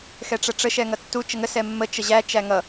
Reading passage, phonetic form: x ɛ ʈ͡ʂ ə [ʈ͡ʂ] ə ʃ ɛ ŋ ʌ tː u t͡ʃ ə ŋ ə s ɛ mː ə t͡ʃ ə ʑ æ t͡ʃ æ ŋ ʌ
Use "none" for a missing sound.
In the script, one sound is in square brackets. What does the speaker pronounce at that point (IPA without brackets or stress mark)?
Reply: ʈ͡ʂ